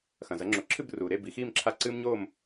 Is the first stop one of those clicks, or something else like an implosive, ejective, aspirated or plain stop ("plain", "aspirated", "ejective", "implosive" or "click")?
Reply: click